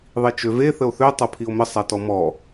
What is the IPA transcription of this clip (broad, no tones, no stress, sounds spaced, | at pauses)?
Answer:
ðˤ i t͡ʃ ø v e θ ə o̯ θ ø tˤ ɤ pʰ i o̯ m ə sˤ a t ɔ m ɔ